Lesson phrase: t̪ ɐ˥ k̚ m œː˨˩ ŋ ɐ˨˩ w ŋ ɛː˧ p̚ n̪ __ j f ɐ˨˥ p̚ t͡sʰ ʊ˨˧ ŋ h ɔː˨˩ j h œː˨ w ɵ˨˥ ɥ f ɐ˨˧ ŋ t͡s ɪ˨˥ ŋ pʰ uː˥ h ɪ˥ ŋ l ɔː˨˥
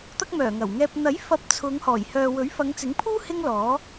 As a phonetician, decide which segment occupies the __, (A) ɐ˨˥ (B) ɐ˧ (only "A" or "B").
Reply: A